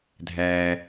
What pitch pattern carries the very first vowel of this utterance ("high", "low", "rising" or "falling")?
low